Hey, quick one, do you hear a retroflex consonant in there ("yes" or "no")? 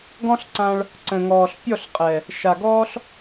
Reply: yes